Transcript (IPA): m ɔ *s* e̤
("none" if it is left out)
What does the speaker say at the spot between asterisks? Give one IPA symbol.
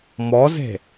z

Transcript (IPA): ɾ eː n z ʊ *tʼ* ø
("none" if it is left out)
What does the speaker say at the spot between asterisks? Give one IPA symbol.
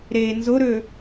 ɾ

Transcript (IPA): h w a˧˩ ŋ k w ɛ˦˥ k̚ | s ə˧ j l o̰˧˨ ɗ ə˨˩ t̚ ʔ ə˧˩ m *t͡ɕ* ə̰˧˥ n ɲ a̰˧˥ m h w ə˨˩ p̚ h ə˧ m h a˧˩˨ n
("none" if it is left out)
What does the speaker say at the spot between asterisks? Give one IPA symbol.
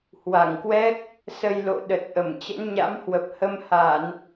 t͡ɕ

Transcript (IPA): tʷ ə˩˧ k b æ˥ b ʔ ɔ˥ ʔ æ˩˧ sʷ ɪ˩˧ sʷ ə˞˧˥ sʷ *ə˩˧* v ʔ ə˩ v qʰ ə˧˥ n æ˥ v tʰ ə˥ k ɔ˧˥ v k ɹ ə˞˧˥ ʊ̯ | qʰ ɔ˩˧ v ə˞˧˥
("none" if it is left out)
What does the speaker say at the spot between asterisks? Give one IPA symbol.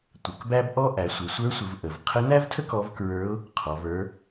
ə˩˧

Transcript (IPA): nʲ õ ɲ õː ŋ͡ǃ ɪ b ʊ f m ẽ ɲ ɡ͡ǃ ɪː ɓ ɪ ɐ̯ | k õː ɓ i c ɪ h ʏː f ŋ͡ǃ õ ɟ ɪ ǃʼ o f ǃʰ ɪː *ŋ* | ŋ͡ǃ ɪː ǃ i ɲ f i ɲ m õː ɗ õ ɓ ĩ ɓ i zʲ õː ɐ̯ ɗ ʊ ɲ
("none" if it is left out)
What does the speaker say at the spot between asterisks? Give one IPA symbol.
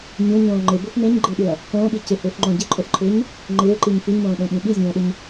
ɲ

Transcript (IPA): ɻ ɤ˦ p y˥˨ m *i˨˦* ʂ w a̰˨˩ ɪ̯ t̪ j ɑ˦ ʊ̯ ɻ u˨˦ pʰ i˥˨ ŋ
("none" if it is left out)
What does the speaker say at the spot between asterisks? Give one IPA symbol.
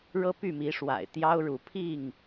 i˨˦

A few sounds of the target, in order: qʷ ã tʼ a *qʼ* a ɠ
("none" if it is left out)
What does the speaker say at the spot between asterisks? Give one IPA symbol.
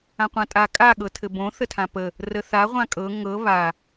kʼ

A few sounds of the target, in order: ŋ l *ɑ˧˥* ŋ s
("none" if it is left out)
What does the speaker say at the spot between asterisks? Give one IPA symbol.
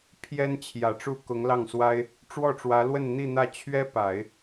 ɑ˥˩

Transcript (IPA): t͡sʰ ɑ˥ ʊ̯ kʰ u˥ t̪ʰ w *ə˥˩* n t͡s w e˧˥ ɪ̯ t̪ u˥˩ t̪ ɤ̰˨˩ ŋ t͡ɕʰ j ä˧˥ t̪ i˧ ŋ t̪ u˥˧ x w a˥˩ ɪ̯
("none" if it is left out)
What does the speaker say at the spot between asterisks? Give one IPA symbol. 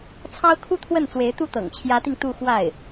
ə˥˩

